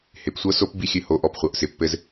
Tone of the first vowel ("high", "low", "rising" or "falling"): low